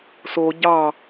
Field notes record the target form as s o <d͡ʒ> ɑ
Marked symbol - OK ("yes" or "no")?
no